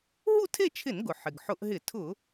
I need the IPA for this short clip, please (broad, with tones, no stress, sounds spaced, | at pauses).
ɦ u˥˧ tʰ e˥˧ t͡ʃʰ ɪ˧˩˧ n ɡ ʊ˩ ħ ɪ˩ ɡ ħ ʊ˧˩˧ ʔ ɦ ɪ˧˩˧ tʰ ʊ˧˩˧